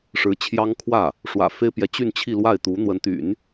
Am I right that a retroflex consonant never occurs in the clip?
no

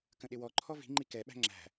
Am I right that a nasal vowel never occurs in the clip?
no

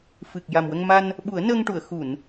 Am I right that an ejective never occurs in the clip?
yes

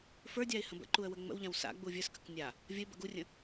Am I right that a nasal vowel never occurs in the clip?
no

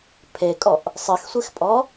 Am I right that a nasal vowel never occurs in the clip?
yes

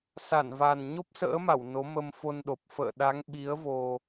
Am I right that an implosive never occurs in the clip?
no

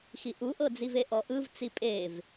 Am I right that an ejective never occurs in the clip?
no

